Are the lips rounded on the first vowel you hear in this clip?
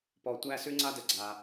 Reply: yes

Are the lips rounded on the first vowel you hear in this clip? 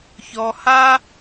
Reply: yes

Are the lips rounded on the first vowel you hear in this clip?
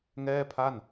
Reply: no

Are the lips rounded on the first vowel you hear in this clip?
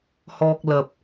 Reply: yes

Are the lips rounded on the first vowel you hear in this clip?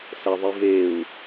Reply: no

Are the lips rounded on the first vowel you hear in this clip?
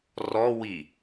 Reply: yes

